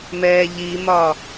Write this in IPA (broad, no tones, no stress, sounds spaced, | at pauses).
m ɛː ʎ i m ɒ